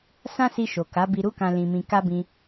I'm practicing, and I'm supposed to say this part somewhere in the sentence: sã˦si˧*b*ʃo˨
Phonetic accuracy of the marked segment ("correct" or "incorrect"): incorrect